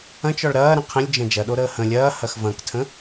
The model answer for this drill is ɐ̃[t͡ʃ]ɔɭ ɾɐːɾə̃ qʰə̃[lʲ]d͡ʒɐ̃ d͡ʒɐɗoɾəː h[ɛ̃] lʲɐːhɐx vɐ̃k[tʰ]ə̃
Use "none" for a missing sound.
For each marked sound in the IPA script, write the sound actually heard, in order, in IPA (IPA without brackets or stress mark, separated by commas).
t͡ʃ, lʲ, ə̃, tʰ